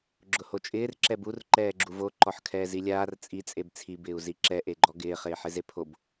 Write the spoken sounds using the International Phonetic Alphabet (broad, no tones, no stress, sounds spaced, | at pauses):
ɡ͡ǁ ʊ h o t͡ʃʼ ɪː r ǁ ɛ b u r ǃ ɛː ɡ͡ǁ u v o ǃ ɔ ħ kʰ ɛː z i lʲ aː r t͡sʼ i t͡sʼ e b t͡sʰ i b ɪː u̯ z i ǁ ɛ ʔ e ɡ͡ǃ ɔ ɡ ɪː χ ɪː ħ ɪ z e pʰ o b